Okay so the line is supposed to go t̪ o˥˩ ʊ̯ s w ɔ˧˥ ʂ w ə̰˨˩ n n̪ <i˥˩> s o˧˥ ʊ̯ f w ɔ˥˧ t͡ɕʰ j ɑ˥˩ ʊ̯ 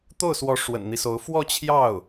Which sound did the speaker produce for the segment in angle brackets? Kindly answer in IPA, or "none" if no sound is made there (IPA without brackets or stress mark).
i˦